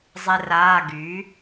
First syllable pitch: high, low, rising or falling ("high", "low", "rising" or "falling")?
high